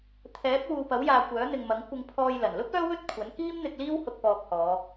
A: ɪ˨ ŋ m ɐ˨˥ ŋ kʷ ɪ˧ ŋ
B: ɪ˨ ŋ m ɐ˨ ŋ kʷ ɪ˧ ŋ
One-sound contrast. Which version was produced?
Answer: A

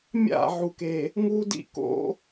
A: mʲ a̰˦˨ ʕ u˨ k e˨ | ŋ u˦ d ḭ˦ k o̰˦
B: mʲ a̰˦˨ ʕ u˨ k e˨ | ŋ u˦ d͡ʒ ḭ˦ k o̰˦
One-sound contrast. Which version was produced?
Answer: A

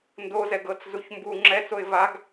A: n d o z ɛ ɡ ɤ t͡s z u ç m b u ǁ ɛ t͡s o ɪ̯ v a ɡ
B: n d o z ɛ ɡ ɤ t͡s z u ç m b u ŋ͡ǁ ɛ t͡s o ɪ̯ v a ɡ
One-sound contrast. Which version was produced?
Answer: B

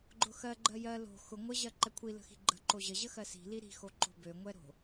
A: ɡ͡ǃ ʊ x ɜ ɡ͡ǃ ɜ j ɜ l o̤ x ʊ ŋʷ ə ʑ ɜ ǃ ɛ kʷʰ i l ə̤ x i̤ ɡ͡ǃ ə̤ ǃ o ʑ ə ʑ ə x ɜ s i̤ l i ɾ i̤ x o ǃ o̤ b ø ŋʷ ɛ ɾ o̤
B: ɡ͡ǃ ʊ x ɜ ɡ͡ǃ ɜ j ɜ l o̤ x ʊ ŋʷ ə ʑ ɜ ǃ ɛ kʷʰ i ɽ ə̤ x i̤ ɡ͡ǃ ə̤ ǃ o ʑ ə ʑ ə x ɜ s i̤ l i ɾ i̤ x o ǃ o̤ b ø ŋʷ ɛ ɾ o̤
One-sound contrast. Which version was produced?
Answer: A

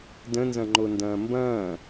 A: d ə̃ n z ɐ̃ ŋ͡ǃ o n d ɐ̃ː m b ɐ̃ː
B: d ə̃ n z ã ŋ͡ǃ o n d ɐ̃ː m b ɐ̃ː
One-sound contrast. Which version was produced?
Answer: A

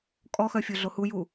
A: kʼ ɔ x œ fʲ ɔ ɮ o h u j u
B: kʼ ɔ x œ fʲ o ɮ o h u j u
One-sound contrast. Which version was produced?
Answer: B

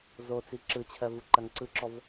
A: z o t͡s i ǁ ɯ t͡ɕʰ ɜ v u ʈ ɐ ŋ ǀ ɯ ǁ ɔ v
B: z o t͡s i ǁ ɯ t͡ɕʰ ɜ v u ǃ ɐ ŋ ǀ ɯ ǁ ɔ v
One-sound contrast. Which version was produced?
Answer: B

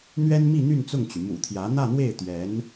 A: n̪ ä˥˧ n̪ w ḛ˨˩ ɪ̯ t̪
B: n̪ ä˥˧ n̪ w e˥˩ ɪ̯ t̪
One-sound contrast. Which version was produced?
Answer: B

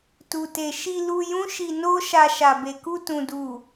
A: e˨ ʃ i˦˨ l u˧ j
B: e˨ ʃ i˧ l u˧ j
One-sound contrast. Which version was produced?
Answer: B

